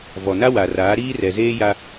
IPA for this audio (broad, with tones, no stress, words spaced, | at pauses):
vɔ˨na˦wa˨raː˨˦ ɾiː˦rɛ˨zeː˦ ja˦